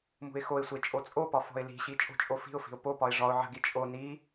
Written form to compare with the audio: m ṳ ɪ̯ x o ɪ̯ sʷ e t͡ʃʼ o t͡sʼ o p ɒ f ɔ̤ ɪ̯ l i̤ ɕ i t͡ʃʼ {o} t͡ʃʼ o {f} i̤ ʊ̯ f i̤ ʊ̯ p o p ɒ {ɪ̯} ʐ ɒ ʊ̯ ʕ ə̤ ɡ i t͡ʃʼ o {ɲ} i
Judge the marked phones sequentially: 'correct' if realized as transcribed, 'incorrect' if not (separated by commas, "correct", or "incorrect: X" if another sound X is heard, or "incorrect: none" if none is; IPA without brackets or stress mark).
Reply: incorrect: o̤, correct, correct, incorrect: n